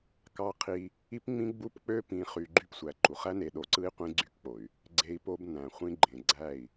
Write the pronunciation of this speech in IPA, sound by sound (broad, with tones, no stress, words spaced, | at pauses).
kɑ˦qʰi˦ | i˦pŋ͡mĩ˦ɡ͡bu˦pk͡pø˦ pĩ˨χy˨ ɡ͡ǃy˦psʷæ˨ǃu˨χ æ˦ne˨ɗo˨ǀɯ˦i̯ qʷĩ˦ɡ͡ǀy˦kk͡po˨y̯ | ɡ͡ǀe˦i̯ po˦bnæ̃˨ χʷĩ˦ɡ͡ǃẽ˨ ɡ͡ǀæ˦˨i̯